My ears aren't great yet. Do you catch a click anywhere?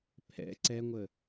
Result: yes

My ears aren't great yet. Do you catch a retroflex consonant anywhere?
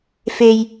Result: no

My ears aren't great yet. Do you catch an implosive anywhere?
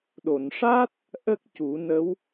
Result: yes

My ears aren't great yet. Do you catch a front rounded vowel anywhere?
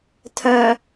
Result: yes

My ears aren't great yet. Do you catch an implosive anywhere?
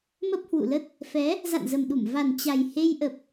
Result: yes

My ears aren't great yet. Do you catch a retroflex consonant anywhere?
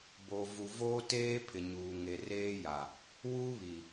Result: no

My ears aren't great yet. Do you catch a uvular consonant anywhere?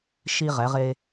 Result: yes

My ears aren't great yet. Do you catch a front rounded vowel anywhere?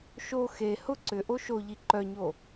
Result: yes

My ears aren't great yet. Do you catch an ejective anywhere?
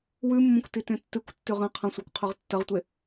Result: no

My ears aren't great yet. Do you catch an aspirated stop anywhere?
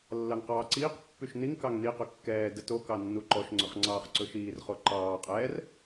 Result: no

